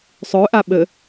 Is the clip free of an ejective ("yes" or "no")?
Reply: yes